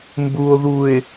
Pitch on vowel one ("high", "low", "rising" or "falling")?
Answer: low